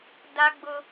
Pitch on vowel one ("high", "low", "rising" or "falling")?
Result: high